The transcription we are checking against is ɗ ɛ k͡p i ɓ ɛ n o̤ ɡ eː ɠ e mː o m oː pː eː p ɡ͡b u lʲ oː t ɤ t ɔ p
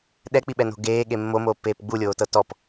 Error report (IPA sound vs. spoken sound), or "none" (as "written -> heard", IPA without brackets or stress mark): none